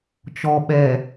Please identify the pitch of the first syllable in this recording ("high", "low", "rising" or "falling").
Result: low